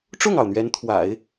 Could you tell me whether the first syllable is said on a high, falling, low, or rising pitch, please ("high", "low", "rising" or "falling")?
falling